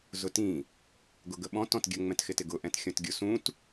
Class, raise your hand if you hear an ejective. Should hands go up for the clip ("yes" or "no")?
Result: no